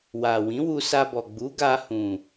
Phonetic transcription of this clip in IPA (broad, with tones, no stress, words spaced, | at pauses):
wa˨ wĩ˨˦wu˧sa˧bɔ˨ ɡ͡bu˨˦ɡa˧hũ˨